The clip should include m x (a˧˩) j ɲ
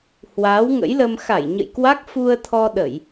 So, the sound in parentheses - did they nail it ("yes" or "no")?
yes